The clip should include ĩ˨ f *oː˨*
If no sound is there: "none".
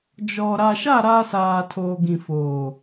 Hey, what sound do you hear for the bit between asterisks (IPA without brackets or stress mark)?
oː˨